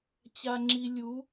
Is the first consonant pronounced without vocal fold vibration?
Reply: yes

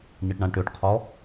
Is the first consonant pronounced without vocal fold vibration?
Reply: no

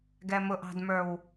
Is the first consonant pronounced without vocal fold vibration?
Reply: no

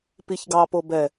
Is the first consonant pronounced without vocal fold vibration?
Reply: yes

